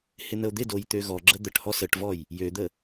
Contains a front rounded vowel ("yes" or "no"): yes